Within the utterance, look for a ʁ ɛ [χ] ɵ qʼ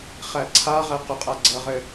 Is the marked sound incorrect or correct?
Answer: incorrect